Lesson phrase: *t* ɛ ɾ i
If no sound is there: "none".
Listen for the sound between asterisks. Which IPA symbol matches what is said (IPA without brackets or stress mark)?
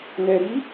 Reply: n